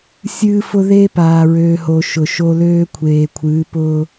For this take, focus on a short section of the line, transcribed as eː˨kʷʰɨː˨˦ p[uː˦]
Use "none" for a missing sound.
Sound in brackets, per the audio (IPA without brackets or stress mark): ʊː˦